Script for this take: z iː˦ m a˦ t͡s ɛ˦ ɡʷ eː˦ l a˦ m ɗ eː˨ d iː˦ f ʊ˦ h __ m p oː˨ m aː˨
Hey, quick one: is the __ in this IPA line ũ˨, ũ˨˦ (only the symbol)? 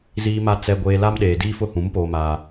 ũ˨˦